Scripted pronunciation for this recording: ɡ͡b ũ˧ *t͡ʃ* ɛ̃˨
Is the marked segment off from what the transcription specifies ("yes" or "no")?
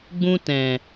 yes